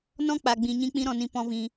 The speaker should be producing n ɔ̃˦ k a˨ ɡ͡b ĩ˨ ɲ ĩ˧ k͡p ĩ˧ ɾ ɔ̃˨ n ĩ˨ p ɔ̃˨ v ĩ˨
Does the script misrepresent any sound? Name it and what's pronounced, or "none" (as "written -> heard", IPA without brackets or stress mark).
k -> k͡p